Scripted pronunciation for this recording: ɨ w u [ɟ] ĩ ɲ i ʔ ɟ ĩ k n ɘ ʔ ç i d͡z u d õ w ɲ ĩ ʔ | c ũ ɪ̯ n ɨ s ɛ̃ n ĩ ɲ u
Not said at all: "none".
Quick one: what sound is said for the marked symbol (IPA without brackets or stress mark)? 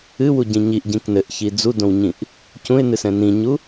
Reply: ɟ